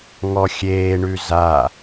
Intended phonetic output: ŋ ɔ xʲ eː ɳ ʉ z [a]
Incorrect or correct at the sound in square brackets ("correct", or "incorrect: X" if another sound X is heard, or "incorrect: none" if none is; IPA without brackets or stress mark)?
correct